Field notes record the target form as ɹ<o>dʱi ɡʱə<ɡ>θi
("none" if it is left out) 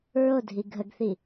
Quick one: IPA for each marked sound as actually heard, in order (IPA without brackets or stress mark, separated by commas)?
o, ɡ